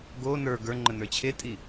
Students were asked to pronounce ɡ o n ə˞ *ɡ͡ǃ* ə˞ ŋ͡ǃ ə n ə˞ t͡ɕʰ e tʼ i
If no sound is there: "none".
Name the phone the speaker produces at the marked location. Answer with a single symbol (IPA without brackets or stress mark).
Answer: ɡ